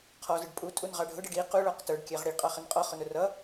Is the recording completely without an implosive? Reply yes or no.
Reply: yes